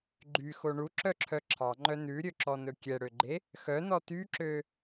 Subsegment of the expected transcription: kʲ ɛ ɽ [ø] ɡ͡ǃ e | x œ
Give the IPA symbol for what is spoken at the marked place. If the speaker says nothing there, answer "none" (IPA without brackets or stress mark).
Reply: ø